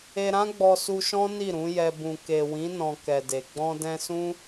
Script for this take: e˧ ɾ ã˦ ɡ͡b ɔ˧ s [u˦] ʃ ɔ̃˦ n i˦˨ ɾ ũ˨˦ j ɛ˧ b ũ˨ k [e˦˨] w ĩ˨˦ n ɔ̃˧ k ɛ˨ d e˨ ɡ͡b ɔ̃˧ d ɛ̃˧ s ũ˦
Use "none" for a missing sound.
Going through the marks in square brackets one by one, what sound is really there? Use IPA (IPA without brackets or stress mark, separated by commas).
u˧, e˨